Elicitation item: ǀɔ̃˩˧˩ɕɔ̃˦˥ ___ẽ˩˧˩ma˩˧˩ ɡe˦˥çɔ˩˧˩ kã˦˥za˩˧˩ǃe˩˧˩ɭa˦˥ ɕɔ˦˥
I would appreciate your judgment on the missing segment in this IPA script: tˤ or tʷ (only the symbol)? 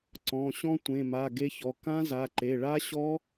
tʷ